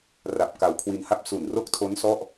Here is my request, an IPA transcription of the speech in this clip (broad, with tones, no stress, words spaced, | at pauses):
ra˨˩p̚ ka˧wkʰwi˧nha˥˩p̚ su˨˩nro˦˥k̚tʰo˦˥n sɔ˥˩ʔ